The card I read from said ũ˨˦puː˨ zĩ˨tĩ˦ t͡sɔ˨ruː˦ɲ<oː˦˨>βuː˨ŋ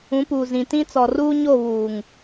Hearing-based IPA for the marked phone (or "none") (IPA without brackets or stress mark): o˦˨